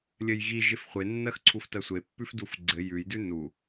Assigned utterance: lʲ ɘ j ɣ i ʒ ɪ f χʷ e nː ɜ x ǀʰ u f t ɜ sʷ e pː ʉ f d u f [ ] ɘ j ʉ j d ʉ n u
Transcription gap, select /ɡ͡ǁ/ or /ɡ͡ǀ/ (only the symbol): ɡ͡ǀ